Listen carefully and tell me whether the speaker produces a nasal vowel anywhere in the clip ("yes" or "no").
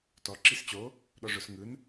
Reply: no